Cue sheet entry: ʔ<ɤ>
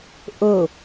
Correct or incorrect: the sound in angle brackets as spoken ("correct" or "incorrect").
correct